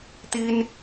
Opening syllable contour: high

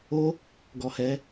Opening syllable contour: high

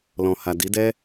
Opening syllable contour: low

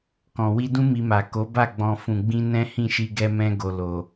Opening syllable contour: low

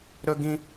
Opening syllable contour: high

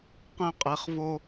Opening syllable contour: falling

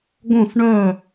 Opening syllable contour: falling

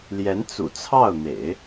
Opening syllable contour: rising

